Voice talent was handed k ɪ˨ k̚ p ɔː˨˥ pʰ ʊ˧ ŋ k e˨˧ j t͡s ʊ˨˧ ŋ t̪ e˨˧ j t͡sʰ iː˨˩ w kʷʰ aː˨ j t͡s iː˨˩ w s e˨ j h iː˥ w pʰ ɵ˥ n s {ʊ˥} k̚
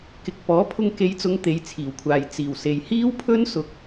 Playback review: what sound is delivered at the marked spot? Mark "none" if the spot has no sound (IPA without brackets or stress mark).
ʊ˥